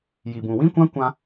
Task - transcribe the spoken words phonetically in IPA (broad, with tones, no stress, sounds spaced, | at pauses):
j i˨ b ũ˨ w ĩ˧ kʷ ã˧ kʷ ã˧